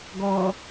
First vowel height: mid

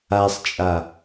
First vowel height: low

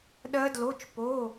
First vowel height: mid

